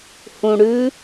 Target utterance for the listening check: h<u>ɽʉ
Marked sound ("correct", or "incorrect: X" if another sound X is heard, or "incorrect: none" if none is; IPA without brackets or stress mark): incorrect: ũ